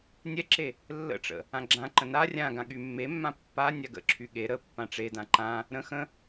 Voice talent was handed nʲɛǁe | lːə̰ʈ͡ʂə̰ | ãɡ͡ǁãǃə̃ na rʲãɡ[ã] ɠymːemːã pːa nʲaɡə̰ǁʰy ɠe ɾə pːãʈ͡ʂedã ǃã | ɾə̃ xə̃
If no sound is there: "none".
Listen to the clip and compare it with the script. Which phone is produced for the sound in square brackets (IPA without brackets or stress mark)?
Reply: ã